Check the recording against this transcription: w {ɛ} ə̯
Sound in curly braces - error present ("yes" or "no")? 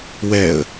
no